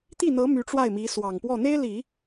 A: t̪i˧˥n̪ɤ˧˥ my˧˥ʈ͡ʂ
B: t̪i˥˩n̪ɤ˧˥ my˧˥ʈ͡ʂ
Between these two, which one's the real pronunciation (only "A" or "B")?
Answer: B